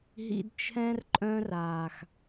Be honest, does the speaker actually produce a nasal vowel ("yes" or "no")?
yes